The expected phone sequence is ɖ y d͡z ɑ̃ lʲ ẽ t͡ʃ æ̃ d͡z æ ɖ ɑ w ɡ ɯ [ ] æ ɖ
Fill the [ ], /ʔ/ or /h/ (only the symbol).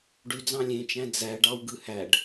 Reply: h